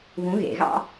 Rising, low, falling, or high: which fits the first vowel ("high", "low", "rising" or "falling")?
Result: rising